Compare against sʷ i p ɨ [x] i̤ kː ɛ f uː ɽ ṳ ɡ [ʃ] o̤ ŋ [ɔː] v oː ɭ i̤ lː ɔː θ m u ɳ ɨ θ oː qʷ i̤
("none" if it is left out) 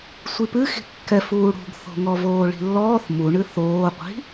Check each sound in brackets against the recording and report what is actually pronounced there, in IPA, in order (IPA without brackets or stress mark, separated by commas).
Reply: x, θ, ɔ